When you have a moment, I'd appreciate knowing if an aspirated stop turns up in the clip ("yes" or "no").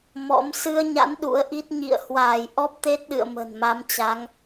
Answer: no